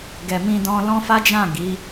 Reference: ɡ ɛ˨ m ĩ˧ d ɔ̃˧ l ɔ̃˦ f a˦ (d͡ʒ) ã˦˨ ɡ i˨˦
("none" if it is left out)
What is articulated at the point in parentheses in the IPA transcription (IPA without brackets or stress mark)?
d͡ʒ